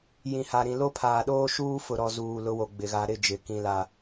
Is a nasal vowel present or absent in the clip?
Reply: present